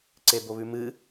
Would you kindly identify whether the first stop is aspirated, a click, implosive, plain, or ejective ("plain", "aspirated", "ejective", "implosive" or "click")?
click